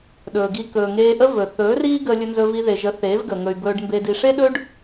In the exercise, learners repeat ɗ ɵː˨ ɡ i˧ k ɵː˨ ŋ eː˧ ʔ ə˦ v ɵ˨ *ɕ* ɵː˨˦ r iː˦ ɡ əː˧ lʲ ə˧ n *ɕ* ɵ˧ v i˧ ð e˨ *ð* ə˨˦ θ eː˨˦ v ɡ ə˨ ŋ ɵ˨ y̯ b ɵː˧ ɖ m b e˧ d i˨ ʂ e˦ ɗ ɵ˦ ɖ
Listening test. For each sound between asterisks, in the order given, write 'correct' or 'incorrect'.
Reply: incorrect: θ, incorrect: z, incorrect: ʒ

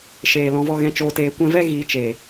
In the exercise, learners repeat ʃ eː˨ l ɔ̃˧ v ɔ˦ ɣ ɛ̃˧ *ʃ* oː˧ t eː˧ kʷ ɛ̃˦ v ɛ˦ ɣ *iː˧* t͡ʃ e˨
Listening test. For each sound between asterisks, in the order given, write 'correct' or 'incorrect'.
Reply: incorrect: t͡ʃ, correct

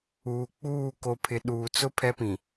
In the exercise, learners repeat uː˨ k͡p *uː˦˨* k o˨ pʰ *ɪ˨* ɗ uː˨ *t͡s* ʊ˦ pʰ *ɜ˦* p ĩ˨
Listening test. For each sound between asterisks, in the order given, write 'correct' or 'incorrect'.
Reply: correct, correct, correct, incorrect: ɛ˦

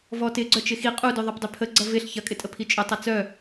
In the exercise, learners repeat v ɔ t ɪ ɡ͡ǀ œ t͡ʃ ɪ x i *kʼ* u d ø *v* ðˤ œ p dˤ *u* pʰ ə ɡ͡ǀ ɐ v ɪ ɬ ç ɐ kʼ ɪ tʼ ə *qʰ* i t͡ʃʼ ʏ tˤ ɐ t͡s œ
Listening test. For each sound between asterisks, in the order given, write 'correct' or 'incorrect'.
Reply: incorrect: qʼ, incorrect: none, incorrect: ø, incorrect: pʰ

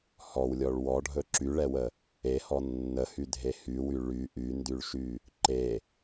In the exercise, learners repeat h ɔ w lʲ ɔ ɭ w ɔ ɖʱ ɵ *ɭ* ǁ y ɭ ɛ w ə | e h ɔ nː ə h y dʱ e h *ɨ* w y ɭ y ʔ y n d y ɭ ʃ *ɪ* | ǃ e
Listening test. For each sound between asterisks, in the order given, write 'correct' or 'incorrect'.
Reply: incorrect: none, incorrect: y, incorrect: y

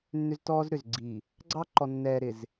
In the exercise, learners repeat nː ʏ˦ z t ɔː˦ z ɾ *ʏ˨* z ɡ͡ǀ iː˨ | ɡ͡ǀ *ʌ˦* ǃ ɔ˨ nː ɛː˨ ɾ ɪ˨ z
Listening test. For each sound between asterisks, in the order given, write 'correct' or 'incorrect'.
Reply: correct, incorrect: ɑ˦

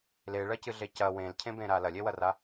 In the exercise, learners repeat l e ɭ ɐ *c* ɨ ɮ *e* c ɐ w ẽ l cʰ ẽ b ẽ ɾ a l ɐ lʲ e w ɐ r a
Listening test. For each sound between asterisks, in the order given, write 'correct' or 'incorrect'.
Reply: correct, correct

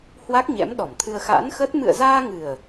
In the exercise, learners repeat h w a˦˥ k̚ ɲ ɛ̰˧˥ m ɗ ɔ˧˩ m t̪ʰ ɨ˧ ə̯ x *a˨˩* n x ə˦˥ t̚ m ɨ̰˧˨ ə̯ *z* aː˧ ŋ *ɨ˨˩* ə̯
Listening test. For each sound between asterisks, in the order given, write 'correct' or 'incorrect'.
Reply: incorrect: a̰˧˥, correct, correct

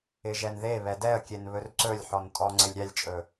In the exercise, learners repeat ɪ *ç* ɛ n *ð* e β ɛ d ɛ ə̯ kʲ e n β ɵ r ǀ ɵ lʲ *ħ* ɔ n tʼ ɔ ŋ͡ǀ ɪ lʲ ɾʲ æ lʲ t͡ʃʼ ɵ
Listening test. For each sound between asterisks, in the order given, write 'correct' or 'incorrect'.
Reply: incorrect: ʒ, correct, correct

